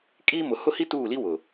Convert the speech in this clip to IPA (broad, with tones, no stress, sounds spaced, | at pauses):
kʼ iː˦ m ʊ˨ h ʊ˦ h i˦ t uː˦˨ l i˦ w ʊ˨